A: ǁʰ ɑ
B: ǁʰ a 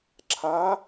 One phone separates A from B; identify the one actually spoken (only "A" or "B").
B